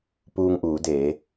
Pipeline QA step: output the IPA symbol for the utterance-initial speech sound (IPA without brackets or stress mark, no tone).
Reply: p